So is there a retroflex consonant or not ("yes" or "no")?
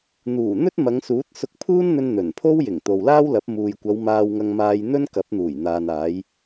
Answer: no